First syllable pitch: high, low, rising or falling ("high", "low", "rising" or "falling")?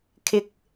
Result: low